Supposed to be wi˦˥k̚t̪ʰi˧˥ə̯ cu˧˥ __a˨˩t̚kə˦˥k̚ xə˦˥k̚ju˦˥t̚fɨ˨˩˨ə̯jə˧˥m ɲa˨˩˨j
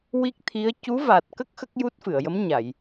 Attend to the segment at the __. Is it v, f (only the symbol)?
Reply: v